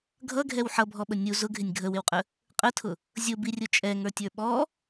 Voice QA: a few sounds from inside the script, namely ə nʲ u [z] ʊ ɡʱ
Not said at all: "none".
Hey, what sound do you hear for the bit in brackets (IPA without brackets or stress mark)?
z